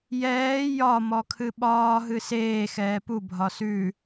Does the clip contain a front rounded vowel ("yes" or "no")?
no